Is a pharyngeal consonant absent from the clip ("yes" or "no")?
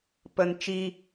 yes